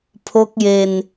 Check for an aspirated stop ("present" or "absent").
present